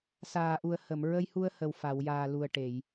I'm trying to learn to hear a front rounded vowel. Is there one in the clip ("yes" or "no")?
no